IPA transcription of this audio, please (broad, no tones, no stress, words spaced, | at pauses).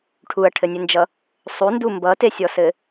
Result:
ʈʰuɐ̯ʈʰɘnʲɘnd͡ʒʌ | sˤundu mbʌtesʲɔsɘ